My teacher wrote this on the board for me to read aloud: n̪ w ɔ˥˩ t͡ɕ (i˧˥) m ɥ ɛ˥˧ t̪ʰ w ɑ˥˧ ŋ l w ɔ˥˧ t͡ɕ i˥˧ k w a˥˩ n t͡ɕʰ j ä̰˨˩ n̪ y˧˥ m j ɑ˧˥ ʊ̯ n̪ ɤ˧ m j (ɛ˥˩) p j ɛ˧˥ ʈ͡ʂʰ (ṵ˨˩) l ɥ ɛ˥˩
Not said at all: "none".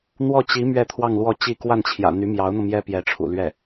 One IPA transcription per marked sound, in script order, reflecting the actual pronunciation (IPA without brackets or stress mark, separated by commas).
i˧˥, ɛ˥, ṵ˨˩